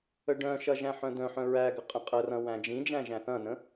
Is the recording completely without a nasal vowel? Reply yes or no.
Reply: no